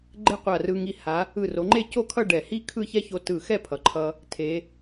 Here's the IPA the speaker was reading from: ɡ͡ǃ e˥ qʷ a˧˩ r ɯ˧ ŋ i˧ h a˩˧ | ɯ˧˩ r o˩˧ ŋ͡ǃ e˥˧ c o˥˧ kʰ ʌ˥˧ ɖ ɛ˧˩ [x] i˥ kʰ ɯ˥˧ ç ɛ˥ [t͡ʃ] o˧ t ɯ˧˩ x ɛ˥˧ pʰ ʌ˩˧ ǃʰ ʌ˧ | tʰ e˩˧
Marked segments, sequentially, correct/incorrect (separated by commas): incorrect, incorrect